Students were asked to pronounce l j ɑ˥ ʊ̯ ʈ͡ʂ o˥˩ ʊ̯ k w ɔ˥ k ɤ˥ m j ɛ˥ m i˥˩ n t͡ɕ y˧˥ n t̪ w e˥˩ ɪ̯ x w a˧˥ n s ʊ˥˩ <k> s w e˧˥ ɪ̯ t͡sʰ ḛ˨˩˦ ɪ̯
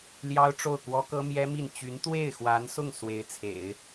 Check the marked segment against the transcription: incorrect: ŋ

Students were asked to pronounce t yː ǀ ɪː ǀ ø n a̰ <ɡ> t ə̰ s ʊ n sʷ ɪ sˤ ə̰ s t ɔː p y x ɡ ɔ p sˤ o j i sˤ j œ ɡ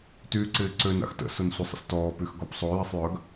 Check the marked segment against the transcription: incorrect: x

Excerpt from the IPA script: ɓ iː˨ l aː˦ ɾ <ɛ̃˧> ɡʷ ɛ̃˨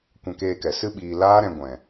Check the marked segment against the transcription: correct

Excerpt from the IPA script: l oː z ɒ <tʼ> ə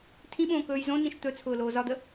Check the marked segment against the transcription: incorrect: d̪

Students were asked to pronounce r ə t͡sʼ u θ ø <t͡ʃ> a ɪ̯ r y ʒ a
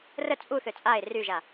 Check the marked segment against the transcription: incorrect: t͡sʼ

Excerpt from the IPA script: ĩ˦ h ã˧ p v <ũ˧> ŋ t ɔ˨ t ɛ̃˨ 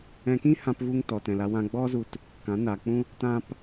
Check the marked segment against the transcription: incorrect: u˧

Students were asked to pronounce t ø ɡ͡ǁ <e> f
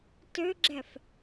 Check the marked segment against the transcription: incorrect: ɛ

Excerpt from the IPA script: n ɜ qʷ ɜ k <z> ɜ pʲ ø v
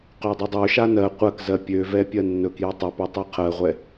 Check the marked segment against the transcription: correct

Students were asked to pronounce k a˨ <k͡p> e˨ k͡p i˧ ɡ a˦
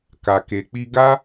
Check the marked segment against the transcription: incorrect: k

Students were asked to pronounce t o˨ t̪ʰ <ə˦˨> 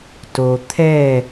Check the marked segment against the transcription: incorrect: ɛ˦˨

